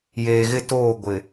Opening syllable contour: low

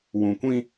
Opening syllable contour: low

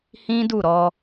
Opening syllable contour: high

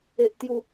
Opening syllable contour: high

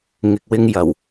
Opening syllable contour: low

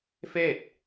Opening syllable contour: falling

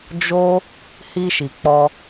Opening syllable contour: high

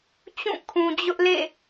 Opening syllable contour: falling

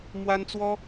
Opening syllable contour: high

